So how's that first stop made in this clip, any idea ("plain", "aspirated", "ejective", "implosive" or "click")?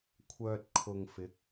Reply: aspirated